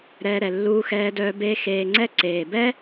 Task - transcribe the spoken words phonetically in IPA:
ɾ ɛː˧ ɾ ɛ˨ lː uː˧ x ɛː˧ d œː˧ b eː˧ x eː˨ ŋ͡ǀ ɛ˧ ǀ eː˨ b ɛ˦

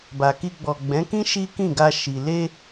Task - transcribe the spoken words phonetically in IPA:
b a˨ k i˧ ɡ͡b ɔ˨ ɡ͡b ɛ̃˨˦ k ĩ˦ ʃ i˦ k ĩ˦˨ ɡ a˧ ʃ i˨ l e˧

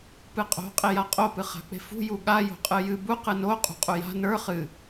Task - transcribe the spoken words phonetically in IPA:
p ɨ qʼ o̤ qʼ e j a qʼ o p ɨ χ a̤ k͡p e̤ f ṳ j u ɠ a j o̤ qʼ ɨ j ɨ b u q ɨ n o qʼ ṳ qʼ u j a̤ n ə˞ χ ɨ

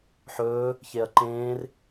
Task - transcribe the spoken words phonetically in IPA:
ħ ɵː | ç e ɐ̯ ǃ ẽː r

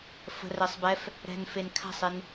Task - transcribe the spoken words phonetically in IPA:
f ə̤ r ɛ sˤ b ɛ f | ɾ ɛ̤ n f e n kʰ a̤ sˤ e n

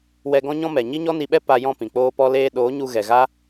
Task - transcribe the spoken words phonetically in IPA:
w ɛ˧ ɡ ɔ̃˦ ɲ ɔ̃˦ m ɛ˨ ɲ i˦ ɲ ɔ˦ n i˧ ɓ ɛ˦ p a˧ j ɔ̃˦˨ p ĩ˨ k͡p oː˦ p ɔ˦ l eː˦ ɗ oː˨˦ ɲ u˧ ɣ ɛ˨ ɣ a˦

